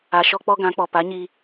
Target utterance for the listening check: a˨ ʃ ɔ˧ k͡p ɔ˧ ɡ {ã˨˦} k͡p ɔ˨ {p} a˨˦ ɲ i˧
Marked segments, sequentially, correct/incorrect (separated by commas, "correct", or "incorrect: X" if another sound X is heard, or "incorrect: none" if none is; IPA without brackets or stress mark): correct, correct